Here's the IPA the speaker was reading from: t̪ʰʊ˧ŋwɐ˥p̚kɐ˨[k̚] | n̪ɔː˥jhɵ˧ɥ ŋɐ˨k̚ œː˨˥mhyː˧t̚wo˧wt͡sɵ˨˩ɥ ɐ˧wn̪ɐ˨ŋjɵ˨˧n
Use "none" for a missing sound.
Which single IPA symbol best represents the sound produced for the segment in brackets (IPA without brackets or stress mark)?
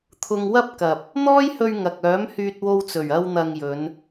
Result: p̚